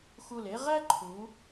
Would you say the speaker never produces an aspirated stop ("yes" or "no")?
no